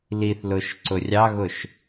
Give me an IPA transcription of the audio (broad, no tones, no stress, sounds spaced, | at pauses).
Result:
l i θ l ʊ ʃ ǀ ʊ rʲ ɑ ɣ ʊ ʃ